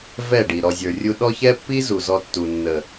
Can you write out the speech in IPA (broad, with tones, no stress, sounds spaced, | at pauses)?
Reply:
v ɛ˦˨ ɖ i˨ ɾ ɔ˨ zʲ ə˞˨ rʲ u˧ ɗ ɔ˦ ç ɛ˦ pː i˦ z u˨ z ɔ˧ tː u˨ nː ə˨